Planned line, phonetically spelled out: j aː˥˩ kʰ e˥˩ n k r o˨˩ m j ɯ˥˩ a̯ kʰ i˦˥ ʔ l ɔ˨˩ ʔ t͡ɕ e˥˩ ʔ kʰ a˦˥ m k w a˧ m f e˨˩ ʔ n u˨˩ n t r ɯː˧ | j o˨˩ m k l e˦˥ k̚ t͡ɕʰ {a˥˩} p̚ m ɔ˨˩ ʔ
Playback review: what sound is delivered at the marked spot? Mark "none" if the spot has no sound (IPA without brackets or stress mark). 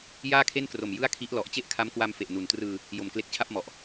a˥˩